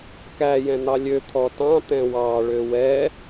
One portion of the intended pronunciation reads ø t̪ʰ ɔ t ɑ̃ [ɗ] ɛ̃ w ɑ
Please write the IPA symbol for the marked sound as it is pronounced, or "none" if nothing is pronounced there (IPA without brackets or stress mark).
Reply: t̪